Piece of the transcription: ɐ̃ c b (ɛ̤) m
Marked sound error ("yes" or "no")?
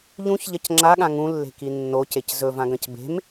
yes